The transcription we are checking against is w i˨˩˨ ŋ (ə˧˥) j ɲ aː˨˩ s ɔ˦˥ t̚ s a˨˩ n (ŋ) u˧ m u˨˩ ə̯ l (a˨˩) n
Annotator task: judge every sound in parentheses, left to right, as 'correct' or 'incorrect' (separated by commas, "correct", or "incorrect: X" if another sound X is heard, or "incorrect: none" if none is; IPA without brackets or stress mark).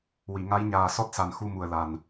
incorrect: a˧˥, incorrect: x, correct